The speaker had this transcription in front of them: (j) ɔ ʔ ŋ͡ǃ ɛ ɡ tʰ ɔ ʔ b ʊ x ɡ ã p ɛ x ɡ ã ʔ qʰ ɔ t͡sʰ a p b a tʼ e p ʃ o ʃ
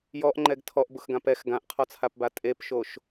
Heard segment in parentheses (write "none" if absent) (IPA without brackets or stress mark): j